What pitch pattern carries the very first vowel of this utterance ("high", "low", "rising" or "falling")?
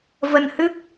low